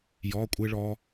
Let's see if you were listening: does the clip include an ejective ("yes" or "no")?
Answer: yes